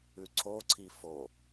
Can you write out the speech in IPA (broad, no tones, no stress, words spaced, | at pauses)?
ʉǀʰoǀʰi fo